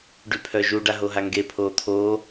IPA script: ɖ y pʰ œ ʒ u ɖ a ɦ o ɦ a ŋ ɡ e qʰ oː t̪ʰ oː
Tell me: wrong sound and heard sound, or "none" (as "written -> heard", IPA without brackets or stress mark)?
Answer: qʰ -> pʰ